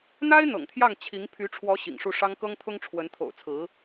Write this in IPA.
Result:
n̪ a˥ ɪ̯ n̪ ɤ̰˨˩ ŋ t̪ʰ j ɑ˥˩ ŋ t͡ɕʰ i˧˥ ŋ pʰ y˧˥ ʈ͡ʂʰ w ɔ˧˥ ɕ ḭ˨˩ ŋ ʂ u˥˩ ʂ ɑ˥ ŋ k ɤ˥ ŋ t̪ʰ ʊ˥ ŋ ʈ͡ʂʰ w ə˧˥ n t̪ʰ o̰˨˩ ʊ̯ t͡sʰ ɹ̩˧˥

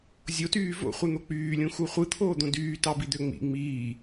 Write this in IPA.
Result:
zʲ o t yː v o̰ χʷ ɯ n̪ o k͡p yː lʲ ũ x u χʷ ɯ t̪ʰ oː d̪ õ d yː t ɑ b i d̪ ø ŋ͡m ḭ ŋ͡m iː

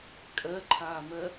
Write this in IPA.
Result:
kʼ ɜ ǃʰ aː m ɜ

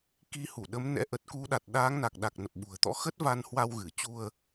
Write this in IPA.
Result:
k i˧ h u˧˩ ɗ ə˨˦ m n ɛ̰˧˥ ʔ ə˨˩ t̚ k u˨˦ ɗ a˨˩ t̚ ɗ aː˨˦ ŋ n a˨˩ k̚ ɗ a˨˩ k̚ n ə˨˩ p̚ ɓ ṳ˨˩ ə̯ t̪ ɔ̰˧˥ x ə˦˥ t̚ v a˧ n h w a˧ w ɣ ɨ˧˩ t͡ɕ u˧ ə̯

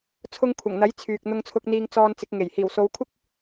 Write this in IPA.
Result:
t͡sʰ ʊ˧ ŋ kʷʰ ɐ˨˩ ŋ n̪ ɐ˨˥ j t͡sʰ yː˨ k̚ n̪ ʊ˧ ŋ t͡sʰ ʊ˧ k̚ n̪ iː˧ ŋ t͡s ɔː˧ n t͡s ɪ˨˥ k̚ ŋ e˨˩ j h iː˨˩ w s o˨˧ w kʷʰ ɪ˥ k̚

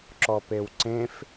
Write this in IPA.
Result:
ǁ ɔ p e w ǀ ẽ f

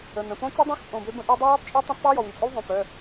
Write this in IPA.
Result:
ə˩˧˩ n ə̃˩˧˩ p õ˦˥ t͡ɕ ø˦˥ dˤ õ˦˥ x pʼ õ˩˧˩ b ø˦˥ b ə̃˦˥ ʔ y˦˥ dˤ ə˦˥ j ɔ˦˥ tˤ t͡ʃʼ y˦˥ tˤ ə̃˦˥ tˤ p œ˦˥ j ɔ˩˧˩ w y˩˧˩ t͡sʼ ø˦˥ w ðˤ õ˩˧˩ p œ˩˧˩

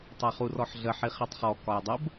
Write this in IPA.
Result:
tˤ a χ u r ɔ ħ ɮ ə ħ i χ i tˤ χ ɔ k ɒ j dˤ ə b

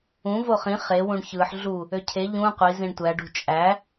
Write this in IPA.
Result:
ũ v o χ ĩ χ e w ũ ɳ ç ɯ ħ ɮ u | ø cʰ e ʎ ũ qʷ i z ĩ ɳ tʷ æ ɖ ṳ t͡ʃʼ æ

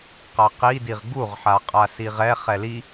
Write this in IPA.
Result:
q a q i d i ʁ ɡ u ʁ ħ a qʼ a s i ʁ ɛ χ ɛ l i

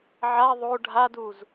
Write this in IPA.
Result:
ʕ a ðˤ o ɖʱ a d u z

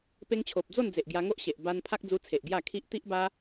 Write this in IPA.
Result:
p e˦ ŋ t͡ɕʰ o˨ p̚ d͡z o˥˧ n d͡z e˨ ʔ ɡ j a˧ ŋ o˦ ʔ ɕ e˨ ʔ b a˧ n pʰ a˦ k̚ d͡z u˧ t͡sʰ e˨ ʔ ɡ j a˥˧ kʰ i˦ ʔ t̪ i˦ ʔ b a˦

